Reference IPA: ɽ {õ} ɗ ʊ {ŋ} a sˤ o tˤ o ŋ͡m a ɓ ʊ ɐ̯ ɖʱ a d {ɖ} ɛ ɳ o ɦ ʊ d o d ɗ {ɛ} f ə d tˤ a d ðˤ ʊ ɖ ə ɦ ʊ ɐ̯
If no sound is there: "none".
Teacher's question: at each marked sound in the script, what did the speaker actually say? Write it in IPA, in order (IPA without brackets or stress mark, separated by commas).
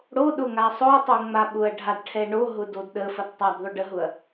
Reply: o, ŋ, ʈʰ, ə